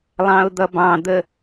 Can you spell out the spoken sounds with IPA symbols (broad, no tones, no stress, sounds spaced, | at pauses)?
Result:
lˠ ɑ̃ ʊ̯ d̪ ʌ b ɑ̃ d̪ ə